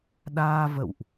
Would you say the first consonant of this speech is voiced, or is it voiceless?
voiced